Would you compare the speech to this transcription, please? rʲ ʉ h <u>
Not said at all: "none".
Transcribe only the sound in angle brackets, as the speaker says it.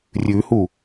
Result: u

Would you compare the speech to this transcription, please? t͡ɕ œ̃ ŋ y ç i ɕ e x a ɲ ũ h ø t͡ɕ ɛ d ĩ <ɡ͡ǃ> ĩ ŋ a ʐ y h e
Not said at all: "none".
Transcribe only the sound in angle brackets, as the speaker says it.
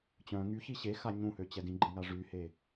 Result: ɡ͡ǃ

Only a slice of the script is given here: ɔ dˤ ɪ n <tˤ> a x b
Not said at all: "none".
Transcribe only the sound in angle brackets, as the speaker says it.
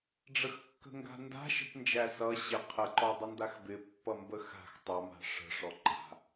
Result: d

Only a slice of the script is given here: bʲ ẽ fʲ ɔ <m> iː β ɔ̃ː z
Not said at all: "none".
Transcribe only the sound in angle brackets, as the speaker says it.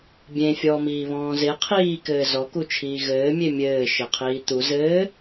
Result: m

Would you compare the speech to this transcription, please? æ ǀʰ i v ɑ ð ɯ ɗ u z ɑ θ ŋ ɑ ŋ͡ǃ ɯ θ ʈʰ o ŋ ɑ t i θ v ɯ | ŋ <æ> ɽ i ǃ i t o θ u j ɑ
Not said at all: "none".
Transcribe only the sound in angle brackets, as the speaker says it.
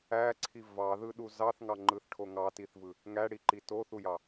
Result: æ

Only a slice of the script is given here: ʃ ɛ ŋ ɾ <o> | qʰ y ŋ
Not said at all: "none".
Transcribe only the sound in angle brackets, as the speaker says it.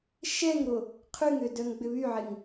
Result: o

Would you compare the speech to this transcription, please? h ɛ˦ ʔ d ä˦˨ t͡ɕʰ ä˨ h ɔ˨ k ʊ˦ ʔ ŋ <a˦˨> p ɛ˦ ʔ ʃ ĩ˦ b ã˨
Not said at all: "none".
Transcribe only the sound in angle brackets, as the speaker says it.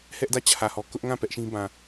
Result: ã˦˨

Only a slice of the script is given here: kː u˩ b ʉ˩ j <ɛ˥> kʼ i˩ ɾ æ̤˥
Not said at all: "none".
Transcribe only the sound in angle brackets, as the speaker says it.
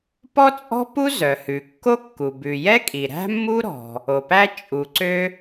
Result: ɛ˥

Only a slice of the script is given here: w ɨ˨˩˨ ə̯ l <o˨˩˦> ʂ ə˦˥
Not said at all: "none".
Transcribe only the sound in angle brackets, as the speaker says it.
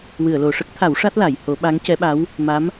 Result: o˨˩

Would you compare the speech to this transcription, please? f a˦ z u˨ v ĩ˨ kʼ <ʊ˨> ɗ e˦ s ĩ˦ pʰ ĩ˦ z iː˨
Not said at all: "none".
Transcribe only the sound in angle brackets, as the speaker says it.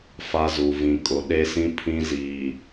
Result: ʊ˨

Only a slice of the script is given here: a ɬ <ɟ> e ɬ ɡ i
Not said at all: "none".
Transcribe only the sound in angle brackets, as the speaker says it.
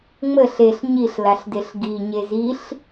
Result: d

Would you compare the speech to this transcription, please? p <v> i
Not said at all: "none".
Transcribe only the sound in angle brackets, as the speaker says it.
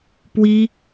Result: w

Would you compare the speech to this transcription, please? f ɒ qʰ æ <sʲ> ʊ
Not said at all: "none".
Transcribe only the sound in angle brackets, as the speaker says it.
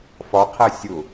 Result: sʲ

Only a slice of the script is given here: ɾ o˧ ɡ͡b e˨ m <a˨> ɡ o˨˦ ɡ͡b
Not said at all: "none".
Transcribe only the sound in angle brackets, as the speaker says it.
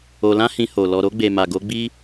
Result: a˨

